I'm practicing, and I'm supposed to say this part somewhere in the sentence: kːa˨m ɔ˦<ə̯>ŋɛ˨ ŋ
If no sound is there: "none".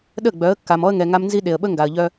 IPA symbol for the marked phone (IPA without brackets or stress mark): ə̯